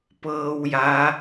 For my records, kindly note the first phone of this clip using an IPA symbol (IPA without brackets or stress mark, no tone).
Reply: p